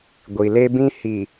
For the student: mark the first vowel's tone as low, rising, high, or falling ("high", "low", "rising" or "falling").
low